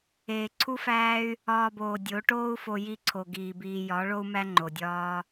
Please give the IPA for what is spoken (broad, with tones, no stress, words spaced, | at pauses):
eː˨ǀʰu˦fæː˦y̯ | ɒː˧boː˨ dʲo˨˦ ʈoː˦u̯fo˧ ji˦ǀʰo˨ɡiː˨biː˧ jɒ˨˦ ɭo˦u̯mæ˦ ŋ͡ǃo˨dʲɒː˦